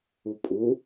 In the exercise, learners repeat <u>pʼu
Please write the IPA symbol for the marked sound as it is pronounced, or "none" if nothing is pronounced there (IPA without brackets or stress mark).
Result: u